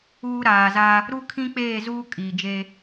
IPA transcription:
uː˦ ɾ aː˨ z a˦ | ɾ u˦ kʰ ĩ˦ k͡p eː˦˨ z uː˦ kʼ iː˨ d͡ʒ e˦

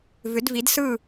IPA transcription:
v ʏ˩˥ d v i˩˥ d s ɯ˥˩

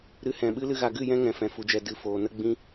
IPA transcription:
ɾ ɨ˧ h ɛ̃˨ ɓ ɨ˦ l ɨ˦ ɣ a˧ ɡ ɨ˦˨ j ɛ̃˧ ŋ ɛ̃˨ f ɛ̃˨ f u˨ d͡ʒ ɛ˨ d ɨ˨ f oː˨ n ə˦ ɡ͡b ĩ˦

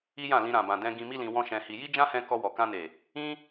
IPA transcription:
i˦ j ã˦˨ l ĩ˧ ɾ ã˨ b ã˨ d ɛ̃˧ ɡ ĩ˧ m i˦ l ĩ˧ w ɔ̃˦ ʃ ɛ̃˧ h i˧ j i˦ d͡ʒ ã˦ h ɛ̃˧ k ɔ˧ w ɔ˨ k ã˧ n e˨ | ĩ˦

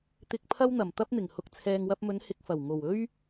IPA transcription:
t̪ ɪ˧ k̚ pʰ ɐ˥ w n̪ ɐ˨˩ m t̪ ɐ˥ p̚ n̪ ɪ˨˩ ŋ h ʊ˧ k̚ t͡sʰ ɛː˨ ŋ w ɐ˧ p̚ m ɵ˨˧ n h ɪ˧ k̚ f ɐ˨˩ w ŋ o˨˩ w ɵ˥ ɥ

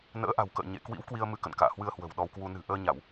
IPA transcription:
n ə̰ː˧˥ ʔ a̤˨˩ w k ə̰ː˧˨ ɲ ḛ˧˨ k w ḭ˧˥ w k w i˧ ə̯ m ɨ˧ k ə̰˧˨ n k a̰ː˧˨ h w ɨ˧ ə̯ h w ə̤˨˩ w ɗ ɔ˧ w k w u˧ n ɨ̤˨˩ ʔ əː˧ ɲ a˧˩˨ w

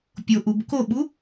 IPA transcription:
pʲ o ʔ u b k o ɓ u

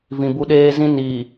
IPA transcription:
v ĩ˨ b u˦ ɗ eː˦ z ĩ˦ n iː˨

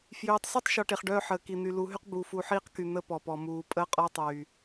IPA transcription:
f j øː˨ tˤ s e˦ tˤ ʃ ɔ˨ ʈ e˨ χ ɖ œː˦ ħ əː˨ k i˨ n̪ y˨ l u˨˦ ɦ y˦ q b u˨ f u˨˦ ħ iː˦ q k y˨ n̪ ə˦ p ɔ˨ p ɔ˨ m uː˨˦ pʼ əː˦ qʼ ɔ˦ tˤ yː˨

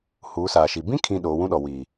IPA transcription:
h uː˨˦ s aː˨ ʃ i˨ b ĩ˦ kʰ ĩ˨ ɗ oː˨˦ w ũ˦ ɗ ɔ˨ w i˨

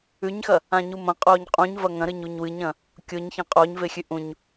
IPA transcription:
ʉ ɲ x ɐ | ã ɲ u m ɐ̃ qʼ oː ɲ qʼ ũ ɲ v ɐ ŋ ɐ̃ ɾ ɨ ɲ u ɲ w ɨ ɲ ɐ̃ | kʲ o ɲ ç ɐ̃ qʼ oː ɲ v e xʲ ʉ ʔ ũ ɲ

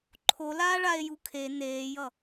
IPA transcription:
ǃʰ o l aː ɭ a e̯ j u kʰ e n eː j ʌ

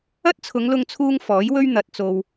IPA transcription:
ɐ˥ t̚ t͡sʰ ʊ˨˧ ŋ l ʊ˧ ŋ t͡sʰ uː˧ ŋ f ɔː˨˥ j w ɵ˥ ɥ n̪ ɐ˨ t̚ t͡s o˨ w

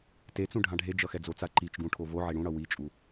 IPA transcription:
t e t͡s ũ ɖʱ ã ɖʱ e d͡ʒ ʌ x ɛ d͡z o t͡s a ǃ i t͡ʃ ɡ ũ ʈʰ o v o ʕ e ɽ ũ ɽ ʌ w i t͡ʃʼ u

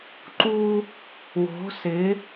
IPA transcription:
ǃ u˦ | w o̤˨˦ s ɪ˨˦

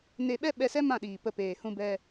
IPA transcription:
n e˧ ɓ ɛ˦ ɓ ɛ˧ s ɛ˦ m ã˦˨ ɗ iː˨ p ə˧ p eː˨ h ũ˧ b ɛ˧

